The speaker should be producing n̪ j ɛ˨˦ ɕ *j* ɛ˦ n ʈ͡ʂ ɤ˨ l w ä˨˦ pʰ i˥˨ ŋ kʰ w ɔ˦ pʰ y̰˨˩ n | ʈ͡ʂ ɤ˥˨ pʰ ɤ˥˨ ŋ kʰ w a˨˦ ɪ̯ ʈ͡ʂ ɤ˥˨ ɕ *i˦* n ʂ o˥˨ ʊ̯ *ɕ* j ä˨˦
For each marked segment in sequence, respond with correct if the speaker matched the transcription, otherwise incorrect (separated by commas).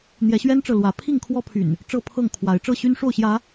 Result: incorrect, incorrect, correct